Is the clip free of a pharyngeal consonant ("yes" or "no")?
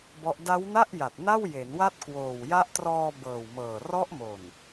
yes